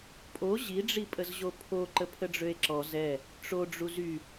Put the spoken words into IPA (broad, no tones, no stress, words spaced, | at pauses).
pʼo ʑiɖ͡ʐipʼəzʑo pʰo ǃəpʰəɖ͡ʐøe̯ǁɔ zɛ | ʈ͡ʂo ɖ͡ʐuzy